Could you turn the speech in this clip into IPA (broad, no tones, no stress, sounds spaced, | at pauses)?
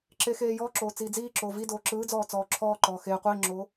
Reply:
ǁ e x eː j ɔː ǁ oː t͡s iː d͡z iː ǁ oː v i d oː ǁ ɯː d͡z ɔː t͡s ɔː ǁʰ ɔː ǃ ɔː x eː qʷ iː ŋ͡ǁ oː